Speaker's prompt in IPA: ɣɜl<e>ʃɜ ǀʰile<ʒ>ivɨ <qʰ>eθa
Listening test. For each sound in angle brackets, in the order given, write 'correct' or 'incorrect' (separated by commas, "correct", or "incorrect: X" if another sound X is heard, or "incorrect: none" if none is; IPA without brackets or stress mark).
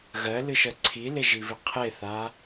incorrect: ɨ, correct, correct